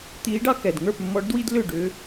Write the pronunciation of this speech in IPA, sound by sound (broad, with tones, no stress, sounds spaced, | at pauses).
t̪ iː˧˥ ɖ ɑ˥ k ɛ˩ d ŋ ə˞˥˨ p mː ɔ˧˥ ɖ d w i˥ d l ʏ˥˨ ɖ ʏ˧˥